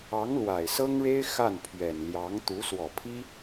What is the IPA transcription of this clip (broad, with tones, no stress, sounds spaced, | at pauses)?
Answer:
ɑ˧˥ ŋ l w a˨˩ ɪ̯ s ɤ˥ ŋ ɻ e˥ ɪ̯ x a˥˩ n pʰ ɥ ɛ˨˩ n l j ɑ˧˥ ŋ t̪ u˧˥ s w ɔ˨˩ pʰ i˥